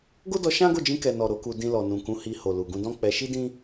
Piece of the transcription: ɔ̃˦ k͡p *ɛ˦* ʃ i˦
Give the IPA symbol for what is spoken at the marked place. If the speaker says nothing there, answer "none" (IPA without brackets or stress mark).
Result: ɛ˧